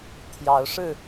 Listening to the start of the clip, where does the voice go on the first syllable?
rising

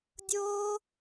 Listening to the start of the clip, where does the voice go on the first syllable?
high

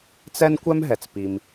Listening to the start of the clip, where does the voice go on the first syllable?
high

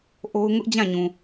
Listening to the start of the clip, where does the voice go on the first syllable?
high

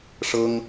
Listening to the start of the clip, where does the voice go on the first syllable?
high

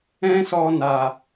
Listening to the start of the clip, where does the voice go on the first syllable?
high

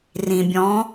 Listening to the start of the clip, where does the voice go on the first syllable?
low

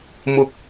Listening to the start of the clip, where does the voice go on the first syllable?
high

